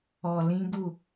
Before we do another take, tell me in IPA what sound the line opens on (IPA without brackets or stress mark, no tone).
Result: ɔ